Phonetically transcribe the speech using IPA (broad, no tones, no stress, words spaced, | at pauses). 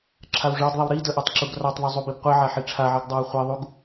ǁʰawʐɑdðˤiw ɾi dəʔatˤ ǁuɡrɑtˤðˤu zˤubibqʷiʕa ħiʈ͡ʂʰaʕiɡ dˤɑwχʷiðˤuɡ